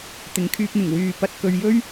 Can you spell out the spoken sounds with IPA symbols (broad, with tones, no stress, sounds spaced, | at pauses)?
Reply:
t̪ ɪ˨˥ ŋ kʰ yː˧ p̚ n̪ ɪ˨˩ ŋ w yː˨ p ɐ˧ t̚ k ɵ˨˧ ɥ j ɵ˥ ɥ